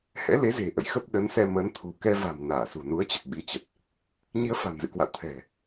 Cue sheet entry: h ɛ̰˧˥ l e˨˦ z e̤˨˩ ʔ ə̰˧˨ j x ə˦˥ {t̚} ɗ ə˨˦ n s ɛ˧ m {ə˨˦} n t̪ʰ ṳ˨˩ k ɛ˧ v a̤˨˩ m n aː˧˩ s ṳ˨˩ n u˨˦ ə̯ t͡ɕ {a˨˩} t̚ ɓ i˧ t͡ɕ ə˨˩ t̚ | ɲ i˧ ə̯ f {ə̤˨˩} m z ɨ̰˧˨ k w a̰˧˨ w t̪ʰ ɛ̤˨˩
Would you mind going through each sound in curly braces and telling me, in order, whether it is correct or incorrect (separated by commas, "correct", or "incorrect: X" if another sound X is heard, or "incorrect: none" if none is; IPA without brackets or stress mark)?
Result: incorrect: p̚, correct, incorrect: ə˨˩, incorrect: a̤˨˩